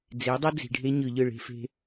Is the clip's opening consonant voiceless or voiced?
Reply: voiced